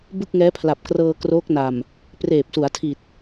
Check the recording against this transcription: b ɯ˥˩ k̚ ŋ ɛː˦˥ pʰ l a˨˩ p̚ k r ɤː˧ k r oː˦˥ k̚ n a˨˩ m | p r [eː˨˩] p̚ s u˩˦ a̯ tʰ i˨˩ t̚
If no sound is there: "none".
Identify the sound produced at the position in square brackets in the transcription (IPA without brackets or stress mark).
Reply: eː˨˩